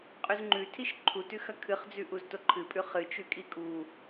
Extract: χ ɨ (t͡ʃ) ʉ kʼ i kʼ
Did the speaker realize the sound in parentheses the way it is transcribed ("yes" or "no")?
yes